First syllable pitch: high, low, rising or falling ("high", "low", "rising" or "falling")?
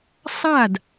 falling